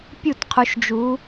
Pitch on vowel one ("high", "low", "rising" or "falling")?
falling